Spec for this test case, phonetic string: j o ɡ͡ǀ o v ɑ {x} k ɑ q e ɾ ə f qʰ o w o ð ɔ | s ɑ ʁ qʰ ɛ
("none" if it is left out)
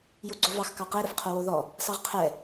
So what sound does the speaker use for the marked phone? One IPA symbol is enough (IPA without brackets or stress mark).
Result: x